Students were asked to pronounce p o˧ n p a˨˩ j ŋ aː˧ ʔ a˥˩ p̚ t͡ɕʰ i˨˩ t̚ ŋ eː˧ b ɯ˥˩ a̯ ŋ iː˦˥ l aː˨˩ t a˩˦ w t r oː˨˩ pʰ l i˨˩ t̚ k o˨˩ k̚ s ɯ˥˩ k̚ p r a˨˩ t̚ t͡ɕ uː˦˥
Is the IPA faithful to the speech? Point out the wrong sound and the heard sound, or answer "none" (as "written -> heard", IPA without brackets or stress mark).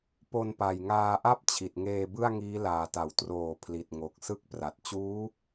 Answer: k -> ŋ